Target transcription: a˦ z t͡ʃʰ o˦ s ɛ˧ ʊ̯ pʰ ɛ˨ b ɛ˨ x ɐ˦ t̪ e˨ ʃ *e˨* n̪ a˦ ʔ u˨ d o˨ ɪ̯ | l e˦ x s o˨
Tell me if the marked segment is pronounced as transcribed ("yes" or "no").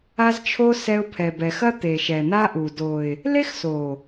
no